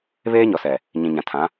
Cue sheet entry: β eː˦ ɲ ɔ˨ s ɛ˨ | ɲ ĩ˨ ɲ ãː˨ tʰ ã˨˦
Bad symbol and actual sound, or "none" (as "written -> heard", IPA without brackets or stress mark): ãː˨ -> ã˨